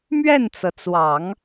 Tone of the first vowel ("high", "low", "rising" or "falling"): falling